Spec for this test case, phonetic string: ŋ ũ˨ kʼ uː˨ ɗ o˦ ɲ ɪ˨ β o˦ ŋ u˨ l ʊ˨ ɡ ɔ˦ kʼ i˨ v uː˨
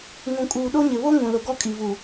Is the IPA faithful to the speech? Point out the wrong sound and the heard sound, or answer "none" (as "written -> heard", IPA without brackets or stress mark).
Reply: u˨ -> ũ˨